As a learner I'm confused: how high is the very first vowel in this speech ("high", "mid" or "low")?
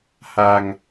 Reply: low